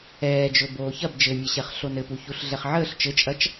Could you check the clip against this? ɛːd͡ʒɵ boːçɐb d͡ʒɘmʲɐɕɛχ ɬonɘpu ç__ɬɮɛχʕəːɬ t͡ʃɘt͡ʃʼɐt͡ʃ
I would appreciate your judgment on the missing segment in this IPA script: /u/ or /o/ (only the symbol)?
u